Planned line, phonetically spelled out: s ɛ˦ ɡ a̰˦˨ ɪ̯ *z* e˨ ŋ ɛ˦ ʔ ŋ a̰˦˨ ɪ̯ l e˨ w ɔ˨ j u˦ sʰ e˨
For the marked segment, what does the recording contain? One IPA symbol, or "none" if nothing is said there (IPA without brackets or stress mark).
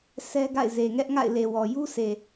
z